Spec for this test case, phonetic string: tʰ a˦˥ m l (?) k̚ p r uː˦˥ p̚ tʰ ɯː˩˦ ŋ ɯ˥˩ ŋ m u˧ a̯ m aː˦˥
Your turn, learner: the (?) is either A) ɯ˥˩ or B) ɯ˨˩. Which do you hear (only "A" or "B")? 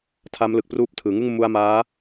B